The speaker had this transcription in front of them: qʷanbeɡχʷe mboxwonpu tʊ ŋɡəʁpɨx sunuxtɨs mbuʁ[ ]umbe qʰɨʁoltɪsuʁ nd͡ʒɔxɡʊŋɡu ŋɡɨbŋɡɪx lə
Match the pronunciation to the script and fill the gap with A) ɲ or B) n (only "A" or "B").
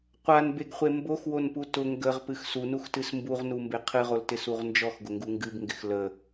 B